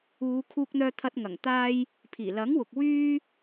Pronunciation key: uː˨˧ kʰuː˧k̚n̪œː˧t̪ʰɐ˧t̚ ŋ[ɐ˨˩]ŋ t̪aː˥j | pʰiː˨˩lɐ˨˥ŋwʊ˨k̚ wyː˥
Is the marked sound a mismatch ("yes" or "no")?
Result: no